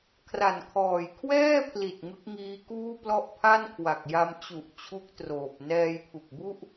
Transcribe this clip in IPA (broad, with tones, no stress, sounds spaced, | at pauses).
kʰ r a˨˩ n kʰ ɔː˨˩ j kʰ w ɛː˥˩ pʰ l i˨˩ t̚ ŋ ɯ˦˥ k̚ ŋ iː˦˥ k uː˥˩ p l ɔ˥˩ ʔ pʰ a˥˩ n kʰ w a˨˩ k̚ j a˧ m t͡ɕ u˨˩ ʔ t͡ɕʰ u˦˥ k̚ t r oː˨˩ p̚ n ɛː˧ j pʰ u˨˩ k̚ b u˥˩ ʔ